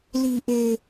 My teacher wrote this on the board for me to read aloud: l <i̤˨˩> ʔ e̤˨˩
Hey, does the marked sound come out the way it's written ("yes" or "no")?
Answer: yes